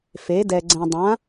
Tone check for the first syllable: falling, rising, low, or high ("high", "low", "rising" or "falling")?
rising